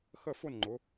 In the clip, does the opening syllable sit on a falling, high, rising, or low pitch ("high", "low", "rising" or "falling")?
falling